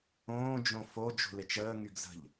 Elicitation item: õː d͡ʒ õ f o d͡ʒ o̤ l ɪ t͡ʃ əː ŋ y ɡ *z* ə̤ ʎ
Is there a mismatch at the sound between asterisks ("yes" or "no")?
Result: no